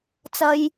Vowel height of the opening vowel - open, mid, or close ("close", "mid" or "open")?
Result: open